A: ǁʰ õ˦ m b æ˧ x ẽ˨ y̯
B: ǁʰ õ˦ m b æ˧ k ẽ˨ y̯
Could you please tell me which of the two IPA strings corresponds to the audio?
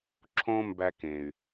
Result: B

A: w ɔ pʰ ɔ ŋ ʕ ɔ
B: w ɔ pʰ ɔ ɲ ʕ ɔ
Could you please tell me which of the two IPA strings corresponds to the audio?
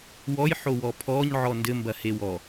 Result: B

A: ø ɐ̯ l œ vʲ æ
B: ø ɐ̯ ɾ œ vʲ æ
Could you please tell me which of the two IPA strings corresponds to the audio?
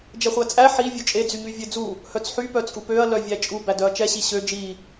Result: A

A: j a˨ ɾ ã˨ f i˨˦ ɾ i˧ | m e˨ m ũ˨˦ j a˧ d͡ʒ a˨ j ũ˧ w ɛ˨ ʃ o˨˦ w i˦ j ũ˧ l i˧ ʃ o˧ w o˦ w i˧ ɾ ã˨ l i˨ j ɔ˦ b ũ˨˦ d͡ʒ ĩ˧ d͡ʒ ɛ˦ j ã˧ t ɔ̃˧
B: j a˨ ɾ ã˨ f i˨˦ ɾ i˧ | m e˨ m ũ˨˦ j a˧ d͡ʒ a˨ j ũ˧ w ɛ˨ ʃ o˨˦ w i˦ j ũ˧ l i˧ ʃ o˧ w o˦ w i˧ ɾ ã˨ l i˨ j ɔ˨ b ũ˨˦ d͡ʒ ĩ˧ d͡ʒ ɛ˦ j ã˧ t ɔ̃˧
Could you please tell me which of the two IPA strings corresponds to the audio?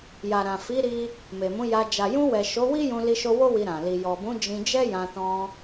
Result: B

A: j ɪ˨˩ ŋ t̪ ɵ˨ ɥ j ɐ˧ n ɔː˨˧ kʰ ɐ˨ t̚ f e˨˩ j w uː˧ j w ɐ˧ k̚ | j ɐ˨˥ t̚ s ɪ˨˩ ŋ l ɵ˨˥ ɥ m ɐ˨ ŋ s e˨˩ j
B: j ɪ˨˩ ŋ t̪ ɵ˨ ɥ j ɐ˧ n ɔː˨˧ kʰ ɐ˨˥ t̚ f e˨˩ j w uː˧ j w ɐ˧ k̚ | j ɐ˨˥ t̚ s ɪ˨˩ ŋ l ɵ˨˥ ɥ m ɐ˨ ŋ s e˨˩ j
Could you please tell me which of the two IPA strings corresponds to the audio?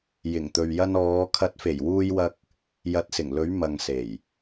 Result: B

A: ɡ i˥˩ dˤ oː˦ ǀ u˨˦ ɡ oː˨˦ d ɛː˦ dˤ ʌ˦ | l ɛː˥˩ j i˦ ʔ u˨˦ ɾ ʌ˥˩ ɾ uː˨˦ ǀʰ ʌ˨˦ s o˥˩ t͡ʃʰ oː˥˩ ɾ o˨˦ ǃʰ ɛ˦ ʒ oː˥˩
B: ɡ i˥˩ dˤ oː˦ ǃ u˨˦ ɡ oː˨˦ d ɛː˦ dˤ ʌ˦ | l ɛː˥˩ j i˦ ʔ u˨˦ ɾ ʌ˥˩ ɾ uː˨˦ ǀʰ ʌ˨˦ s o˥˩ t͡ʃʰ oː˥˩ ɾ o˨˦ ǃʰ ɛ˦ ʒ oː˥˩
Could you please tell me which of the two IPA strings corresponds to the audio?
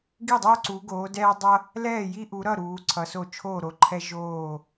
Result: A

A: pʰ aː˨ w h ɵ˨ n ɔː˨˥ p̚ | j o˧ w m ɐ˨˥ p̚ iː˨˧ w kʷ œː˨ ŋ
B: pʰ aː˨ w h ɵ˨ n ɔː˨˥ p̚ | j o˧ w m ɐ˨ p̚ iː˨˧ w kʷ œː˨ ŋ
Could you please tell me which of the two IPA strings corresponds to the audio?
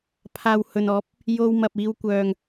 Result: B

